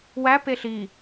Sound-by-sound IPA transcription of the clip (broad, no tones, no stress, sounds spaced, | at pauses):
w æ p e ɬ i